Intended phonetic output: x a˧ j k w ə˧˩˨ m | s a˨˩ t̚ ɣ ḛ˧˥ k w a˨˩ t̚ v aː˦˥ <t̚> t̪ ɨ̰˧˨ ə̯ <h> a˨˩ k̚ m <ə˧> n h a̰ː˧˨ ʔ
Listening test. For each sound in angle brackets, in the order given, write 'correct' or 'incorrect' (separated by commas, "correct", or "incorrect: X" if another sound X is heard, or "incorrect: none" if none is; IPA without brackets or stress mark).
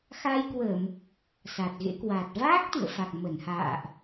incorrect: k̚, incorrect: f, incorrect: ə˧˩